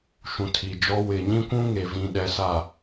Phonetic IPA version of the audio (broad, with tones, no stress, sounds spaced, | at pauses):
ʃ ũ˨ tʰ i˨ d͡ʒ ɔ˦ w ɪ˨ ɲ ĩ˦ kʷ ũ˦ ŋ e˨ v ĩ˨ ɗ ɛ˨ s a˨